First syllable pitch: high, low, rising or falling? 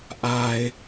low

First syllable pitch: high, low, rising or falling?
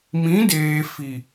rising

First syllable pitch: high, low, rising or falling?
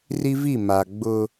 high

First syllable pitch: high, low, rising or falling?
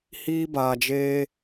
high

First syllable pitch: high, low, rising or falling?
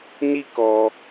high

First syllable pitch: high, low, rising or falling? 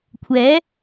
rising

